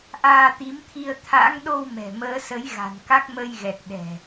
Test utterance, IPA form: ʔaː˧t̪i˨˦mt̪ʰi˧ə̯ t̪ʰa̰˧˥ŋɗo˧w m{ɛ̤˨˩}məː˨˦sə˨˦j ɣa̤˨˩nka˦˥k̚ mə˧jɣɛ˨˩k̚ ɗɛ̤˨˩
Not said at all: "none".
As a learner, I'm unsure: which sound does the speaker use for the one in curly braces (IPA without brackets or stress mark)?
ɛ̤˨˩